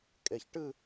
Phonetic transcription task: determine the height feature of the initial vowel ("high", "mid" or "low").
mid